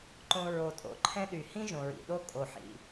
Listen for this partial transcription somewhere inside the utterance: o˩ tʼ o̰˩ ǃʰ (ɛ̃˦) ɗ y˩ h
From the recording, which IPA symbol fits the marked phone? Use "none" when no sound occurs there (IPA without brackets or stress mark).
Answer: ɛ̃˦